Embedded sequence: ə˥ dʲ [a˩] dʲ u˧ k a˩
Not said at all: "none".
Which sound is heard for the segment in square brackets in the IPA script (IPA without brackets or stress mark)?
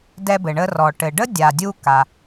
a˩